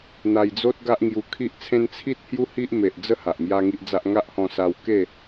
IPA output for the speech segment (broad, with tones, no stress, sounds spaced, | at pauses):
n̪ a˧ j d͡z o˦ t̚ ɡ a˦ ʔ ŋ j u˧ kʰ i˦ ʔ t͡sʰ ẽ˦ n t͡sʰ i˦ t̚ h j u˦ h i˦ ʔ m e˨ ʔ d͡z ə˦ h a˨ ʔ m j a˦ ŋ i˦ ʔ d͡z a˦ ʔ ŋ a˦ ʔ h ɔ̃˧ s a˧ w k e˥˧